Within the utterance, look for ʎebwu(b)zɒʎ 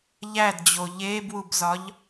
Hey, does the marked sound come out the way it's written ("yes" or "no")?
yes